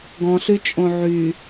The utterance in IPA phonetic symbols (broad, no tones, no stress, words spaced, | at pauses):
ɡɔ̃ɬy t͡ʃʼõʕy